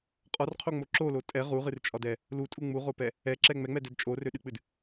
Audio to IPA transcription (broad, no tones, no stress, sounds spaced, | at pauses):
qʼ ɒ r qʰ o ŋ͡m o ǁ o l o tʼ ɛ ʁ u ʁ ɨ r t͡ʃʼ ɒ d ɛ | l u tʼ u ŋ͡m u ʁ o p ɛ | ɛ ǁ ɛ ŋ͡m ɛ ŋ͡m ɛ d ɛ d t͡ʃʼ o r ø ɗ ɨ k͡p ɨ d